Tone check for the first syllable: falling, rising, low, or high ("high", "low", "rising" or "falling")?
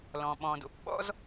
low